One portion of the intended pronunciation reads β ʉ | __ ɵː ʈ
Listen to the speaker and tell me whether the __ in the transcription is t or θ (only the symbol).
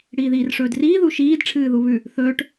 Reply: θ